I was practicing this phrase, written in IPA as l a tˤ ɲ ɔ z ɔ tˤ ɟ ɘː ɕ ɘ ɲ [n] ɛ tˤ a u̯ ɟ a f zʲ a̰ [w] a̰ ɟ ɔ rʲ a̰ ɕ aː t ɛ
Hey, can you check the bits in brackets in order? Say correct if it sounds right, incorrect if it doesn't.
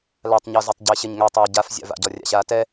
incorrect: ŋ, incorrect: v

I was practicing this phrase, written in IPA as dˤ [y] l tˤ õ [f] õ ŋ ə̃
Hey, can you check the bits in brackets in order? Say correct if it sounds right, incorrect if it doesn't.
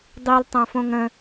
incorrect: i, correct

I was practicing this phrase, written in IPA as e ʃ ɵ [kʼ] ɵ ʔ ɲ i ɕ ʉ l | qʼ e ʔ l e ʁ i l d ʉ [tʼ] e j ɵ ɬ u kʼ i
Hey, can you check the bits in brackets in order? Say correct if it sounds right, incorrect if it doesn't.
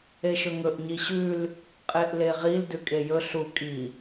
incorrect: ŋ, incorrect: kʼ

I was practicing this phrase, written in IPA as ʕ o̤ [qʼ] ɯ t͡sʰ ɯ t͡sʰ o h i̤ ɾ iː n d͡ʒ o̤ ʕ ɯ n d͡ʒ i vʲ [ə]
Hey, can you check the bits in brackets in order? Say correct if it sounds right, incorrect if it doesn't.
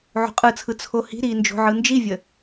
correct, correct

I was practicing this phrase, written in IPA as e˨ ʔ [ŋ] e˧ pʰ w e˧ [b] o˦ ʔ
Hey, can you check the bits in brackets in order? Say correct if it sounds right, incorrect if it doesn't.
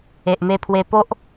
incorrect: m, incorrect: p

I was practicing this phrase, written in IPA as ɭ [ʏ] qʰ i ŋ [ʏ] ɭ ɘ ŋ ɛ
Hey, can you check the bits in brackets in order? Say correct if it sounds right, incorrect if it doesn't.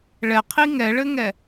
incorrect: ɛ, incorrect: ɛ

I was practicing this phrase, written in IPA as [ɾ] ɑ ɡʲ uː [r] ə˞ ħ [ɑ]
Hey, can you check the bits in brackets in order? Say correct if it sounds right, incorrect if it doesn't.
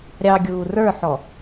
incorrect: ɾʲ, correct, incorrect: ɔ

